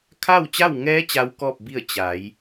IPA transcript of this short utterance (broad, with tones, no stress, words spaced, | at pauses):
kʰa˥˨wt͡ɕa˥˨wŋɛː˧˥ t͡ɕa˧˥w kɔː˥˨p̚bi˥˨ə̯ t͡ɕa˩˧j